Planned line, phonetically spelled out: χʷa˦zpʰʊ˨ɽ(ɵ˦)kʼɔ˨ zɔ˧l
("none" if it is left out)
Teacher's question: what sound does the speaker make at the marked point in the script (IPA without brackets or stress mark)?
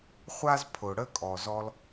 ə˦